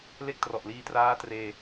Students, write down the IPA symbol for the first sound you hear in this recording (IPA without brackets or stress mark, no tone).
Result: l